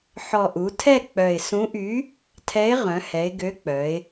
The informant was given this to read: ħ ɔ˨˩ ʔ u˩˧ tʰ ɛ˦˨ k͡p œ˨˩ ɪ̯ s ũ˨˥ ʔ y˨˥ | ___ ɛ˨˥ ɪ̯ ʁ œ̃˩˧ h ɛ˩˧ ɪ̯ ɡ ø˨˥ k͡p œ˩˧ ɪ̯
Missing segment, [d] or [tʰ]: tʰ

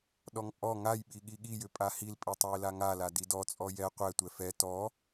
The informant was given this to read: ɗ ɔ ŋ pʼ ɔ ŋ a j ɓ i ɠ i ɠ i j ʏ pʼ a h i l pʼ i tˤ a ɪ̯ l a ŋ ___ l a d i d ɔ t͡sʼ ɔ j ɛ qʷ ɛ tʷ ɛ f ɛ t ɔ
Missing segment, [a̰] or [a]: a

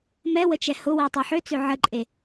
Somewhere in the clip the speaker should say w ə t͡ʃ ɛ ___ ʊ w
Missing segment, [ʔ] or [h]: h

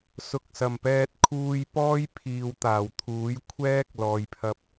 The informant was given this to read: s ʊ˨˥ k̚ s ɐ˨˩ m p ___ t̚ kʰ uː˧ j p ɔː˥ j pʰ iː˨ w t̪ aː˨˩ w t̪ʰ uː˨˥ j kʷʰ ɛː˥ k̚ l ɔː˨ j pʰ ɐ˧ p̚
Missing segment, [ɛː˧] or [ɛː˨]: ɛː˧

